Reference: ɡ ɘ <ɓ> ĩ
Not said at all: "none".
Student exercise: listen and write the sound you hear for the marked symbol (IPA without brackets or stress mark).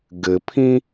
pʰ